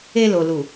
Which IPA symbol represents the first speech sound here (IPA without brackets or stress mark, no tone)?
e